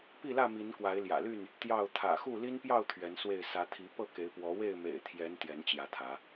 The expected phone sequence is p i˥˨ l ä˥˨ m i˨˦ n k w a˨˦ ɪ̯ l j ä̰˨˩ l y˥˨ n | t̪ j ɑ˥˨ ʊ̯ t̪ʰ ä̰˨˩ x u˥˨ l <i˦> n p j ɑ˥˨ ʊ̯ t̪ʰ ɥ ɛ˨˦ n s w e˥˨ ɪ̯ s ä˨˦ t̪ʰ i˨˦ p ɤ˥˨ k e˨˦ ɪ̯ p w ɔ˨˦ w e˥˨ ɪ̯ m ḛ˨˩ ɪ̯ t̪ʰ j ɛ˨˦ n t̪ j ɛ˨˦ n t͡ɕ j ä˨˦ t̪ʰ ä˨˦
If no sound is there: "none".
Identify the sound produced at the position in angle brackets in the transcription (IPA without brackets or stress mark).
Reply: i˦